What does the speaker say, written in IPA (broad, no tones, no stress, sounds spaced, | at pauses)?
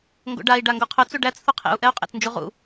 ŋ ɡ o̰ ɖ a i̯ ɖ a ŋ ɡ o qʰ ʊ t͡s u ɖ æ t͡s θ u qʰ ḛ u̯ ʔ ɛ u̯ qʼ ḛ t͡s n d͡ʒ u ʁ ṵ